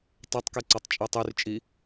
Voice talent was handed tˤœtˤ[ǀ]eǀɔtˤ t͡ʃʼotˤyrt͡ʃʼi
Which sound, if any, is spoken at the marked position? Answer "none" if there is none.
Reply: k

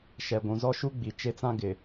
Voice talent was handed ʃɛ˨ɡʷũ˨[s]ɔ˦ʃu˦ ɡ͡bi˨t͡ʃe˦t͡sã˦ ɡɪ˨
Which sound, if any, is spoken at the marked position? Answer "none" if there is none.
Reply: z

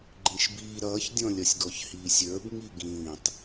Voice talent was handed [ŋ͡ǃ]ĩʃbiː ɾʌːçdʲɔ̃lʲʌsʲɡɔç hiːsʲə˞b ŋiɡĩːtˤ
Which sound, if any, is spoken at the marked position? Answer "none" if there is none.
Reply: ɡ͡ǃ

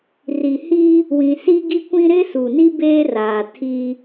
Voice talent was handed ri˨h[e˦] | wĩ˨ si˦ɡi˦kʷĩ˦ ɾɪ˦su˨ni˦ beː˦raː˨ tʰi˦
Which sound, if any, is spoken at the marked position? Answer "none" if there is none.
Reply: i˦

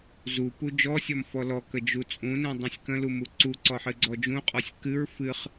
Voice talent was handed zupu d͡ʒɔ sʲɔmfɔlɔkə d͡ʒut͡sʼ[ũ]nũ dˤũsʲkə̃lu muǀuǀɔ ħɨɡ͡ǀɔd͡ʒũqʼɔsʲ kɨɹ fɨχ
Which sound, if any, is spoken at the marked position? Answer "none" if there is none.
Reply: ũ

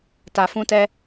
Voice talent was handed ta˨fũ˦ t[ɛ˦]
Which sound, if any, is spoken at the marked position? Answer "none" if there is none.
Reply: ɛ˦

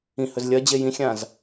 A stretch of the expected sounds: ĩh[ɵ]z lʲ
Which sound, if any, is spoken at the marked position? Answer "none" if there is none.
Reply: ɵ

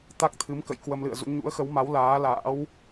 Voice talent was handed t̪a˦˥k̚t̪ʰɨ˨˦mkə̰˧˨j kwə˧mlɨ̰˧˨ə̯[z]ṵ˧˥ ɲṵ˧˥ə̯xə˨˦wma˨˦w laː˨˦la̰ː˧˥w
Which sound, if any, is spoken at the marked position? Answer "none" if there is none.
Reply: z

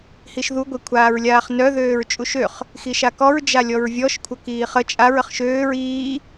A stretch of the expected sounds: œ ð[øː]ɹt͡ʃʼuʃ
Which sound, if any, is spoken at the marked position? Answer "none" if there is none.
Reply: øː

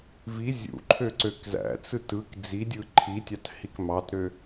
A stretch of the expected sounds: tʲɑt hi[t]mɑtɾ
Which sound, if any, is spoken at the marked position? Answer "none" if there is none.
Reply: k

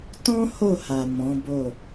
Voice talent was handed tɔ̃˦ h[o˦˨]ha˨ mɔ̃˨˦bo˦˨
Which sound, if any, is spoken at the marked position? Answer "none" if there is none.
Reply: o˦˨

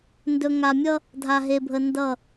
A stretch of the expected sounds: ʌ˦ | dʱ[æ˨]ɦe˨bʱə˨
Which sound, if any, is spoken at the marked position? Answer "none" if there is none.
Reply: a˨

